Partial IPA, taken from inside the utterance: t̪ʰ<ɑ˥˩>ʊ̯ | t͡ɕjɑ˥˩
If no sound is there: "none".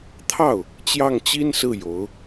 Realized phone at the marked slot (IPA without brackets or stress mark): ɑ˥˩